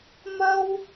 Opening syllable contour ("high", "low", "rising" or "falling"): high